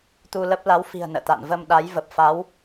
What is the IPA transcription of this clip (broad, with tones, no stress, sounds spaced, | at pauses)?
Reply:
t̪ u˧ l ə˦˥ p̚ l a˨˦ w f i̤˨˩ ə̯ n ə̰ː˧˨ t̪ a̰ː˧˨ n v ə˧ m ɗ a˨˦ j v ə˨˩ p̚ f a˨˦ w